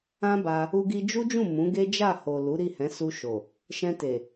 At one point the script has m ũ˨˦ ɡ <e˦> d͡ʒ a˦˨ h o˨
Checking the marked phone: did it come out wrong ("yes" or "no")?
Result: no